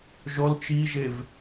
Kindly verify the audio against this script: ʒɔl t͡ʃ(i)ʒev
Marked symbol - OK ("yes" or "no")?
yes